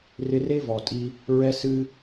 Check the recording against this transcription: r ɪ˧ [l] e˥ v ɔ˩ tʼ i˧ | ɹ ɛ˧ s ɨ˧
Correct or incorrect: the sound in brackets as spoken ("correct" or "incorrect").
incorrect